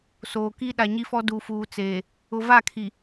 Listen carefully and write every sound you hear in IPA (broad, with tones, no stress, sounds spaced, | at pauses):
s oː˨ k i˦ ɗ a˨ ɲ i˦ f ɔ˦ d u˨ f uː˨ t͡s eː˨ | ʊ˨ v a˦˨ kʰ i˨